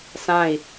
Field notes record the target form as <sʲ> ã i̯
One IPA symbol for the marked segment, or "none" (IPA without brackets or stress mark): s